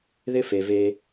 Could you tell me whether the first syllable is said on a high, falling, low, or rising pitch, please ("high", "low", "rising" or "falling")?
high